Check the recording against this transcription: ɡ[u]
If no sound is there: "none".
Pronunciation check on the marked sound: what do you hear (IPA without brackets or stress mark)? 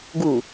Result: u